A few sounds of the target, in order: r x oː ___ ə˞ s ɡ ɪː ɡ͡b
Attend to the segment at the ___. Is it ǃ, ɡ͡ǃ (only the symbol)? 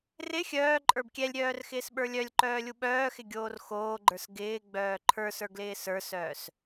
ɡ͡ǃ